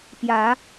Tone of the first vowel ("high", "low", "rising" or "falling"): rising